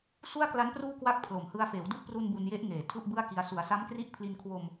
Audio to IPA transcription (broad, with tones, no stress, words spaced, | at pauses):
su˥˩a̯kla˦˥n pruː˥˩kwa˥˩k̚ pʰlo˨˩mhɯ˧a̯ feː˩˦wdu˦˥ʔpru˧n bu˧nje˦˥ʔŋeː˨˩ tʰu˥˩ʔbɯ˥˩a̯ki˧a̯ su˩˦a̯sa˦˥mkri˦˥ʔpʰli˧n kʰwo˧m